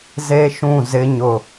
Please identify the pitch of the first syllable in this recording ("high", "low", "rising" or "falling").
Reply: high